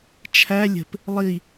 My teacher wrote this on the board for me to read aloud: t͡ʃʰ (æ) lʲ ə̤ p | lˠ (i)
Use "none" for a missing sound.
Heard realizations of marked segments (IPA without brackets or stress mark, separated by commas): æ, i